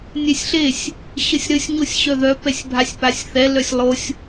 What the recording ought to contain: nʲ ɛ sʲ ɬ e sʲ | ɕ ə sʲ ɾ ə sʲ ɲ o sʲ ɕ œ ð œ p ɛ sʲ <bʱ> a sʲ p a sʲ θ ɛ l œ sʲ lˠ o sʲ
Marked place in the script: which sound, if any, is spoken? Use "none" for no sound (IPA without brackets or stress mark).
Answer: bʱ